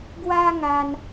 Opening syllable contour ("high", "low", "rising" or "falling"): high